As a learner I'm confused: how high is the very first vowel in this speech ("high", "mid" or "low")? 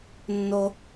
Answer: mid